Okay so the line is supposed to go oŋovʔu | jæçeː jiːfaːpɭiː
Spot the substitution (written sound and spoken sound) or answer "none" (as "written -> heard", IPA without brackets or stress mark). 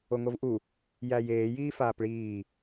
ç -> j